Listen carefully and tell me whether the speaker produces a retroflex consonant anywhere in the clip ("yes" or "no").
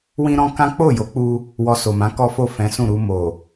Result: no